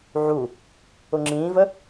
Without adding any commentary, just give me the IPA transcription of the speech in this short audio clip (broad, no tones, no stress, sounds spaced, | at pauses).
ʕ u | ʊ ŋ͡ǁ ĩː v ə